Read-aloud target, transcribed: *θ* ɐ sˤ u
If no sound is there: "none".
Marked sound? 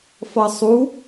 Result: f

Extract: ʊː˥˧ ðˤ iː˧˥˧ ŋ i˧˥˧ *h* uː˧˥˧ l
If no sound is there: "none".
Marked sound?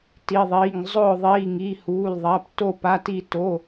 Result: h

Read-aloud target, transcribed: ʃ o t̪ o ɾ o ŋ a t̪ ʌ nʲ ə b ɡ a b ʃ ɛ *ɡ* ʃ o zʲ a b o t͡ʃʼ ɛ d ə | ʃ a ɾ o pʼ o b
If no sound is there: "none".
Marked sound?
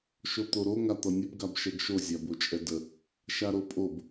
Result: ɡ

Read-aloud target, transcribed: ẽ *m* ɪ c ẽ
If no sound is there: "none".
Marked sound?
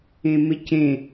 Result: m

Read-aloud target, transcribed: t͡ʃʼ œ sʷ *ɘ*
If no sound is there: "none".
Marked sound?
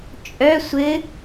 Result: ɘ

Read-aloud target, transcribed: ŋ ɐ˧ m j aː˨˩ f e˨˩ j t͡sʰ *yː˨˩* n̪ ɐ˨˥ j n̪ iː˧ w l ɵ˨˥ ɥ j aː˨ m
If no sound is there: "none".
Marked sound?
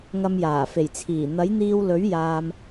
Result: iː˨˩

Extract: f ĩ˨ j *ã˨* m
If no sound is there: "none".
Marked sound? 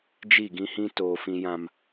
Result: ã˨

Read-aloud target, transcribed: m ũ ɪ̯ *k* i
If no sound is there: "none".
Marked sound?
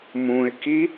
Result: k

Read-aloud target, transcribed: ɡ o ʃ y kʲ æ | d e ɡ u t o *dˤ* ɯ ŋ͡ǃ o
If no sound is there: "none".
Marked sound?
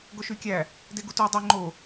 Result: dˤ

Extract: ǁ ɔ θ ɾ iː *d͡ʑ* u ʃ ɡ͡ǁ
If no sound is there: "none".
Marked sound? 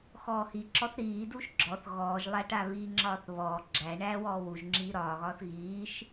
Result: d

